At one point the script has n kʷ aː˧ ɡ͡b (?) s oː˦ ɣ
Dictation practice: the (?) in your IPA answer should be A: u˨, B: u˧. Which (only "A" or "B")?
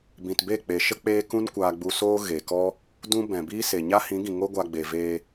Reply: B